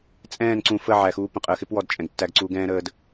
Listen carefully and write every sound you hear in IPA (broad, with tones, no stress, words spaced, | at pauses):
t͡sʼɛ̃ː˦˨nǀũ˨fə˦˨ ʕæ˨xuː˦pə̃˨ qʼəː˨xɪ˦pwɔ˨d t͡ʃʼɛ̃˨ɡtːæ˦ɡǀuː˦ɡ ɛ̃ː˦ɾəː˦d